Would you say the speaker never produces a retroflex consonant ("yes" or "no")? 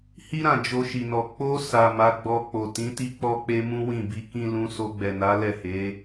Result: yes